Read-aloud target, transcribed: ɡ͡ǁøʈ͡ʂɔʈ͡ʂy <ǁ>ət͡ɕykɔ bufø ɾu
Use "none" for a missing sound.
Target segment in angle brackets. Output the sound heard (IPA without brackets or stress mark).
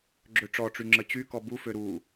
ŋ͡ǁ